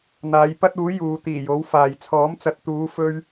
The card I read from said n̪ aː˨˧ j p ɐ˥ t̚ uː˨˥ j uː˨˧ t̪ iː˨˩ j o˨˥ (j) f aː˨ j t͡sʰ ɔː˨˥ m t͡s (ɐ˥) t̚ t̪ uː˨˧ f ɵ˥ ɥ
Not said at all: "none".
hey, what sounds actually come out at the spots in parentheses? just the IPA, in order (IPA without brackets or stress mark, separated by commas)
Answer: w, ɐ˨˥